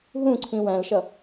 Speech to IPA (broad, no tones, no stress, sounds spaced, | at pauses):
ɦ ũ ǀʰ ĩ w æ̃ l ʃ ʌ